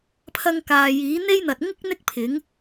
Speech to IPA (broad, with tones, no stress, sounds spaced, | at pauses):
pʰ ɐ˧ ŋ k aː˨ j iː˨˥ n̪ e˥ j n̪ ɐ˨ t̚ ŋ ɪ˥ k̚ n̪ ɪ˥ k̚ pʰ ɪ˨˥ ŋ